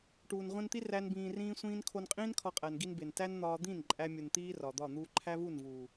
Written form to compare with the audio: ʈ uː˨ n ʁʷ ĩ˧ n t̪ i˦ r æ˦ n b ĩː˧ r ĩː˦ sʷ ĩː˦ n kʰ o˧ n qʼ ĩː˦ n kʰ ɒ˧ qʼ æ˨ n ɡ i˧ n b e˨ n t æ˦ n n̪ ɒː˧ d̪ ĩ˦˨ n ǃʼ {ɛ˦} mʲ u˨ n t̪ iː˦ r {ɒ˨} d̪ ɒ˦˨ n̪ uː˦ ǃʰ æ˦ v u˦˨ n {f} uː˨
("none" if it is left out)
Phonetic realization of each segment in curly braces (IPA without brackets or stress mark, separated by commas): æ˦, ɒ˨, v